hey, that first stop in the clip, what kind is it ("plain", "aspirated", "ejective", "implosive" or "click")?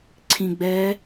click